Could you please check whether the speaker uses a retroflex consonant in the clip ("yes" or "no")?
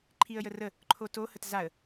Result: no